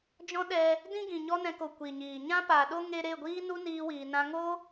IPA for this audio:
d͡ʒɔ̃˦ɗɛ˧ | dĩ˦ɡĩ˨ ɲɔ˦nɛ̃˧ko˨ kʷi˨ɲiː˨ ɲã˦paː˨ɗo˦ ŋe˧ɾe˦˨ɡʷiː˦ nu˦niː˧wiː˨ nã˧ ŋo˦

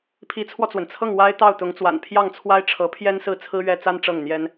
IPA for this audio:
pʰi˧˥t͡sʰwɔ˧t͡swə˩n t͡sʰɤ˥˩ŋ wa˥ɪ̯ t̪ɑ˥˩ʊ̯t̪ʊ˧˥ŋt͡swa̰˨˩n pʰjɑ˥˩ŋt͡sʰwa˥ɪ̯ ʈ͡ʂʰɤ˧˥pʰjɛ˥nsɹ̩˥˩t͡sʰɹ̩˥ ɥɛ˥ t͡sa˥n ʈ͡ʂɤ˥˩ŋn̪jɛ˥n

